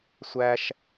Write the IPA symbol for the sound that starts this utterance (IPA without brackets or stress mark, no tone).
sʷ